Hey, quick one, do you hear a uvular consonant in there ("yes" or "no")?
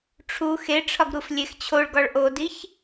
no